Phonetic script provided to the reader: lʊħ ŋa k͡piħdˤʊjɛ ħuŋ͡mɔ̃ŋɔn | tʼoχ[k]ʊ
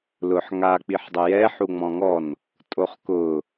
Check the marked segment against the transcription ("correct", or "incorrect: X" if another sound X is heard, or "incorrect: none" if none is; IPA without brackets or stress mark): correct